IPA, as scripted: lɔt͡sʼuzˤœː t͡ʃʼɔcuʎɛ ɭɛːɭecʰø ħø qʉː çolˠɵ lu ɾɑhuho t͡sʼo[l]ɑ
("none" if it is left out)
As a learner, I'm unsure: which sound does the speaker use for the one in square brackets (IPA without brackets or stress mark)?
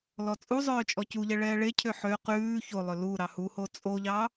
ʎ